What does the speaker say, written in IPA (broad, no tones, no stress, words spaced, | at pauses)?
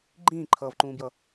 ɡ͡ǃĩːǃʰʌːvǃũːbjʌ